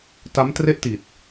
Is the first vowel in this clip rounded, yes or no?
no